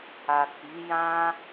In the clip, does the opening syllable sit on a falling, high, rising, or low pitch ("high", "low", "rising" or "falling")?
low